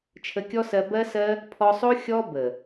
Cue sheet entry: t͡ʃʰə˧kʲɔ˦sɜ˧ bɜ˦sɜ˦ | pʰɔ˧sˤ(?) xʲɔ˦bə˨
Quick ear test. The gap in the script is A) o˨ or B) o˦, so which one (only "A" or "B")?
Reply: B